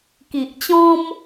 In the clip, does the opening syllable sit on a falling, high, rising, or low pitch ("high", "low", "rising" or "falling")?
low